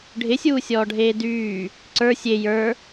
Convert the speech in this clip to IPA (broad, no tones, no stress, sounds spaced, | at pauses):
ɖʱ ɪ sʲ uː sʲ ɔː ɖʱ eː d yː | ǀ ə˞ sʲ e j ə˞